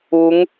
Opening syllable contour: rising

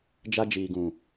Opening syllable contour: high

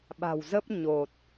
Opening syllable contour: low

